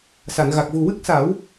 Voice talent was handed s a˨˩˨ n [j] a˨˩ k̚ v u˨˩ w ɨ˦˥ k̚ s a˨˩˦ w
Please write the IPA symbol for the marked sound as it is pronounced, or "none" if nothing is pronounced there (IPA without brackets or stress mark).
ɣ